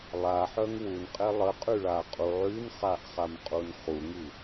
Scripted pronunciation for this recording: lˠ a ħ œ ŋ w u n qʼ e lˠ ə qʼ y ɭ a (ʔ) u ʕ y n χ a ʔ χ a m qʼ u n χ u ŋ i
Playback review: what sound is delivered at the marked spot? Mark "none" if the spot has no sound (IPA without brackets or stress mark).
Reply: qʼ